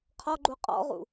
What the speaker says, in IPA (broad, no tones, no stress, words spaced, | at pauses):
qʰɔɡ͡ǃu qʼɔ̰ʁṵ